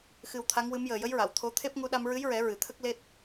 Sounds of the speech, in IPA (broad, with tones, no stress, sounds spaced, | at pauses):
x ɨ˧ w t̪ʰ a˧˥ ŋ w ɨ˧˥ m j əː˨˩ j ə˧˥ j ɹ a˨˩˨ w t̪ʰ o˧˥ t̪ʰ e˦˥ p̚ ŋ u˧ ɗ a˧ m ɹ ɨ˧˥ j ɹ ɛ˨˩˦ ɹ ɨ˨˩˦ t̪ʰ ə˦˥ k̚ l e˦˥ t̚